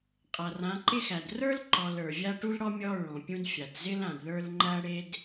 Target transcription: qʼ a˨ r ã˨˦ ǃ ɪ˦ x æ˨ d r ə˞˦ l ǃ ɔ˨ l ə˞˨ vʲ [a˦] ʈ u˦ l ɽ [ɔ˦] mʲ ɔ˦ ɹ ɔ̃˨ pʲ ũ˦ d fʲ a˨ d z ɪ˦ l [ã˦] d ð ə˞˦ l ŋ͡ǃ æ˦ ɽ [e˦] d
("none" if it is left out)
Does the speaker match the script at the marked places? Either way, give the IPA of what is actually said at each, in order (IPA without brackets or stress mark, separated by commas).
a˦, ɔ˦, ã˨, e˦